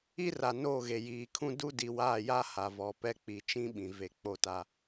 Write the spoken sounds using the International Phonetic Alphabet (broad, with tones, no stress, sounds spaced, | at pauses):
i˦ r a˨ n oː˦˨ ɣ e˨ j iː˨ kʰ ũ˦ d u˦ d i˨ w aː˦˨ j a˦ h a˨ v ɔ˨ p ɛ˦ k͡p i˨ t͡ʃ ĩ˦ ɓ ĩ˨ v e˨ k͡p o˦˨ t a˦